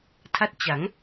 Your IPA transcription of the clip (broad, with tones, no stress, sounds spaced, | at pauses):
tʰ a˥˩ t̚ t͡ɕ a˩˦ ŋ